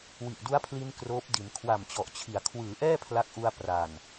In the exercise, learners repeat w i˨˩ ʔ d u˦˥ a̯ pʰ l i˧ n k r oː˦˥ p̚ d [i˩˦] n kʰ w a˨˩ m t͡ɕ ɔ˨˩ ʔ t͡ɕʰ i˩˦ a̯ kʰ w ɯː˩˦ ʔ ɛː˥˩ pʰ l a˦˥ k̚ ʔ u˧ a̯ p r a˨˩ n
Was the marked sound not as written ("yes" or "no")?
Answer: no